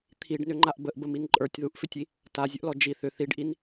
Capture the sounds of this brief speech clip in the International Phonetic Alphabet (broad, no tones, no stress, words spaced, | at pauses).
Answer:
t̪ʰiɖnʏŋ͡ǃaʔ bəʔbəmin ǃʼə˞tʲðuʔfʏtʲi | tazʲəʔlɔ d͡ʒi θʏ θiɖʔin